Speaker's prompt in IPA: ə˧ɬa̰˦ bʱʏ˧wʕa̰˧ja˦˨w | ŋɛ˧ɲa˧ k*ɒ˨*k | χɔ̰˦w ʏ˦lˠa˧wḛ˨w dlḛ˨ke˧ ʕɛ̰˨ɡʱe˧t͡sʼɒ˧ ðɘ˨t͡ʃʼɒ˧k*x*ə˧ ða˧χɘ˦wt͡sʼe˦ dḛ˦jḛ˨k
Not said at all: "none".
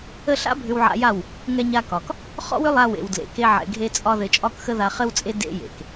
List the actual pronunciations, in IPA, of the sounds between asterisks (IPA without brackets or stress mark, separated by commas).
ɒ˨, x